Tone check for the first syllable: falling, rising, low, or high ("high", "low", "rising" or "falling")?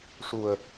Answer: low